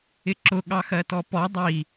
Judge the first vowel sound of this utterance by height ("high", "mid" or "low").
high